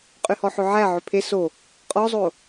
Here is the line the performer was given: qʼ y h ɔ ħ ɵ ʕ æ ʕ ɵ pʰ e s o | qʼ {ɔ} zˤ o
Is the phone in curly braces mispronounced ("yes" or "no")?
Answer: no